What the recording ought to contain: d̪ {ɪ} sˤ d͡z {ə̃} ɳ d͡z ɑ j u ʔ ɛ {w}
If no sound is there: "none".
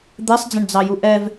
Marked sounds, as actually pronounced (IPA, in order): ɛ, ə̃, v

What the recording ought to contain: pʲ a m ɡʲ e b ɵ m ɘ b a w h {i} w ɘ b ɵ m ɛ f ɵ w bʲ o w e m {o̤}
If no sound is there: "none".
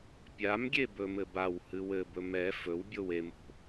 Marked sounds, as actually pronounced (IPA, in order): ɨ, o̤

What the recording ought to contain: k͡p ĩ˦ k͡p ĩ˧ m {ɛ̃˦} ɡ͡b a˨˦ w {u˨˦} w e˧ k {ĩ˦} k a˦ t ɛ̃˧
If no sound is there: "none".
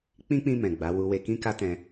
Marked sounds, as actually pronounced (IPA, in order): ɛ̃˨, u˧, ĩ˦

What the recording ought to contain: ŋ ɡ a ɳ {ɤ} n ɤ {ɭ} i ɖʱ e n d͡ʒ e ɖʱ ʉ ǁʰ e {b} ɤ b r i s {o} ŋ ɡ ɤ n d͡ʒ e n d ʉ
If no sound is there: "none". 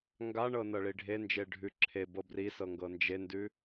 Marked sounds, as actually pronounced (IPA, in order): ɤ, ɭ, b, ɤ

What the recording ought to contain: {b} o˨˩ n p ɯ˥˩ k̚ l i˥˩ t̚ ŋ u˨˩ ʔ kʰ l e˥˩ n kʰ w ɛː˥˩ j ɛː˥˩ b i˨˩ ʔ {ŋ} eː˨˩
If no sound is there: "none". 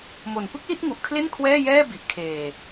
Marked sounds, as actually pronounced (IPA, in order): m, kʰ

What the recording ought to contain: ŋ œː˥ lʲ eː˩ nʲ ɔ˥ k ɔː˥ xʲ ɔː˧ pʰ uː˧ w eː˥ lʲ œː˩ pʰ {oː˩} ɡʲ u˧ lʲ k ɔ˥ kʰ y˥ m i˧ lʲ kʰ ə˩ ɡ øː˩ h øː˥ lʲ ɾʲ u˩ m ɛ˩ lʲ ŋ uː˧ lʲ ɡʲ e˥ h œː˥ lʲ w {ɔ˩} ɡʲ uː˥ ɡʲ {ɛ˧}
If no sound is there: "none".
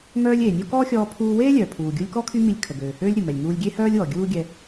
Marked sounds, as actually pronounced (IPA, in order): uː˩, ɔ˩, ɛ˧

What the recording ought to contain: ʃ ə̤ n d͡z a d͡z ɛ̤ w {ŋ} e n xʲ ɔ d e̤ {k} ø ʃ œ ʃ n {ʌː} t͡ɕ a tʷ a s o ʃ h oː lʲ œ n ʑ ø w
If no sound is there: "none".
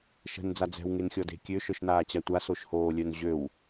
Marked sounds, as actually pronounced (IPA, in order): ŋ, kʲ, aː

